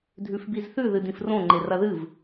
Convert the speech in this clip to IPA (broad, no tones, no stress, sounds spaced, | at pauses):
dʱ ʉ f b i z θ ʉ ð ɨ d ĩ f r õ ŋ͡ǃ e r ɐ ð ɨ v